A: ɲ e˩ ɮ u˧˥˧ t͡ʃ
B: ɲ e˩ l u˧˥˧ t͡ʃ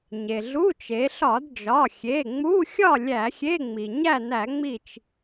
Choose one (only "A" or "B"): A